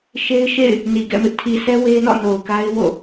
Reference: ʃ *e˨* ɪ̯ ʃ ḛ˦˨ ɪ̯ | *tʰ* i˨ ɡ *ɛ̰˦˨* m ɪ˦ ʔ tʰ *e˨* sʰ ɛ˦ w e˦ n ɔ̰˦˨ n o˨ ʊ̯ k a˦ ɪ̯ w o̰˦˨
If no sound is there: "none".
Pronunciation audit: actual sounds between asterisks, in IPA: e˦, n, ɛ̰˦˨, i˨

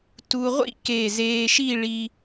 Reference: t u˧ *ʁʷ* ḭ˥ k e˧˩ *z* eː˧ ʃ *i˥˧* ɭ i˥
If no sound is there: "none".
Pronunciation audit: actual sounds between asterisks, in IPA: ʁʷ, z, i˥˧

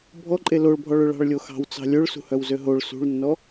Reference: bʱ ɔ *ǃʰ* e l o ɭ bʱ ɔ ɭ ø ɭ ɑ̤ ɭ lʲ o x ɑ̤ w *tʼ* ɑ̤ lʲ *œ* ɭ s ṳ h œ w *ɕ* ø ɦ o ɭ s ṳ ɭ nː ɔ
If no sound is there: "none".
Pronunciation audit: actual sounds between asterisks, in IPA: ǃʼ, t͡s, ø, z

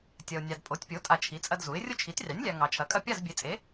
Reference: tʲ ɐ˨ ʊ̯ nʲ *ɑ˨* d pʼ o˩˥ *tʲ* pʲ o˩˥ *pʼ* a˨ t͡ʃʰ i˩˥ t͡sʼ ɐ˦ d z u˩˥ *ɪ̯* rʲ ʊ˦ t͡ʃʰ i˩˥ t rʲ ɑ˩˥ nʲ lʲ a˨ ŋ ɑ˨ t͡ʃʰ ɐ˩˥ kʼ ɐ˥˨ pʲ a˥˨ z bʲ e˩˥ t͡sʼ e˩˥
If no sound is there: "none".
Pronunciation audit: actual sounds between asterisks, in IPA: ɑ˨, tʲ, tʼ, ɪ̯

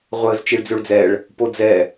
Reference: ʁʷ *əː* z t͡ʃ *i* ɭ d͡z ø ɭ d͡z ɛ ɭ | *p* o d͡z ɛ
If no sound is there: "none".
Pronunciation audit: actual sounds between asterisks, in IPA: əː, i, p

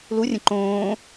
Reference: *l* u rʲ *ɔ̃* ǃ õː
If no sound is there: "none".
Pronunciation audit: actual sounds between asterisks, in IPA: l, ə̃

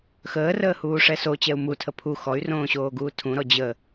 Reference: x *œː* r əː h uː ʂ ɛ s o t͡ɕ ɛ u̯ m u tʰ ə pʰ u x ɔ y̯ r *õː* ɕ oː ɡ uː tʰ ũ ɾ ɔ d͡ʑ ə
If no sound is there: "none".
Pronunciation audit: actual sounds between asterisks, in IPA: əː, õː

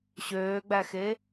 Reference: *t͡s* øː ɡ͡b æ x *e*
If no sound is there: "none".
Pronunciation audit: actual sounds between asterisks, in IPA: ɕ, e

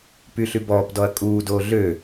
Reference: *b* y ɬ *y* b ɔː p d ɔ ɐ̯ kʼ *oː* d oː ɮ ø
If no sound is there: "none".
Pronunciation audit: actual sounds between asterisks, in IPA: p, y, uː

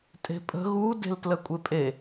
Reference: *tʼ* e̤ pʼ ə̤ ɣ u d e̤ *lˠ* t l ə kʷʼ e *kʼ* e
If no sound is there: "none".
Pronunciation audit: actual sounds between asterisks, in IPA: tʼ, l, pʼ

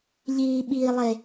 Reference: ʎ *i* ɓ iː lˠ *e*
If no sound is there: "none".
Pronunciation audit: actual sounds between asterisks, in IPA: iː, e

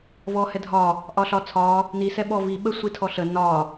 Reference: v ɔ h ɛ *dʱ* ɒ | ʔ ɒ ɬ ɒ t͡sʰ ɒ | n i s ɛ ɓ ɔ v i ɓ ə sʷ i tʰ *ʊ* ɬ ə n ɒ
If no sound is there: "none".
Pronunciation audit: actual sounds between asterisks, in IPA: dʱ, ɔ

